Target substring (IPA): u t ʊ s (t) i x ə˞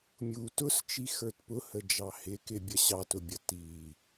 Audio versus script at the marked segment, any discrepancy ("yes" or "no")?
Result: yes